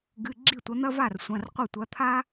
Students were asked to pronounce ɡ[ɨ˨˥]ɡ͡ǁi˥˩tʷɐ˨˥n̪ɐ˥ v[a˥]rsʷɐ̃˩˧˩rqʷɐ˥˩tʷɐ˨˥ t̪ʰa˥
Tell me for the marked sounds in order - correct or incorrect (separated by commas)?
incorrect, incorrect